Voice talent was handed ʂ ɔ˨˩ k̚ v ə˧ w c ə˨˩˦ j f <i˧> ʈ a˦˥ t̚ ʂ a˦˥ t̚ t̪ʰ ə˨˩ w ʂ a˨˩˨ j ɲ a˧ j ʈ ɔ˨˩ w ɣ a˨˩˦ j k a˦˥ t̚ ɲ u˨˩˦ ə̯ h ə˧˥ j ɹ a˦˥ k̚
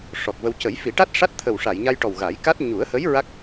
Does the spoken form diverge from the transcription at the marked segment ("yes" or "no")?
yes